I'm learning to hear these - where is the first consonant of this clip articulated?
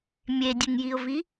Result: lips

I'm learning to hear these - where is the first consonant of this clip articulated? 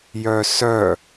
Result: palate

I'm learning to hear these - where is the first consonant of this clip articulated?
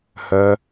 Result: throat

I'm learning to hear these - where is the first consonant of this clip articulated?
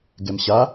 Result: velum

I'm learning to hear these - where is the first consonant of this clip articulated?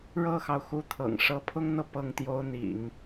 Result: retroflex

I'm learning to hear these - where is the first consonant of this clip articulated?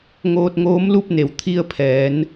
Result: velum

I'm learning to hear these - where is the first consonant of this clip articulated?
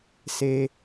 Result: tongue tip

